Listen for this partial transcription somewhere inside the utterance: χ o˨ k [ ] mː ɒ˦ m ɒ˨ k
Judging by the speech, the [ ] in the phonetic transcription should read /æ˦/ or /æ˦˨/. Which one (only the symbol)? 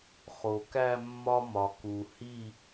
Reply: æ˦˨